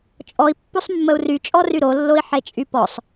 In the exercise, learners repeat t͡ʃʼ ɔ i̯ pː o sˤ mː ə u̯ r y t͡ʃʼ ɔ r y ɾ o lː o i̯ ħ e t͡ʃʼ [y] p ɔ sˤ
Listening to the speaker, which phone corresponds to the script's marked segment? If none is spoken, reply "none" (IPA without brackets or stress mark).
y